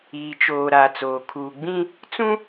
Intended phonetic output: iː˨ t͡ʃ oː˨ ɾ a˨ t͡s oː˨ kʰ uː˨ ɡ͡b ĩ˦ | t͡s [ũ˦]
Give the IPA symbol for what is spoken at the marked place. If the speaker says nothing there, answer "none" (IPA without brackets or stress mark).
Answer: ũ˦